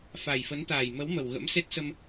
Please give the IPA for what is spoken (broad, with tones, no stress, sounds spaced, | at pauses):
f a˨˩ j f ə˨˦ n t̪ aː˨˩ j m ə˨˦ w m ə˨˩ w ɣ ə̰˧˥ m s e˦˥ t̚ s ə˧ m